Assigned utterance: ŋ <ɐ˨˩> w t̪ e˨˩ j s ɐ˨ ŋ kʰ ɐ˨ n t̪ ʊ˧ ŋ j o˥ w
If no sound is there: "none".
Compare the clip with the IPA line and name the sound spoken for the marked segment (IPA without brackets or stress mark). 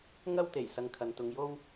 ɐ˥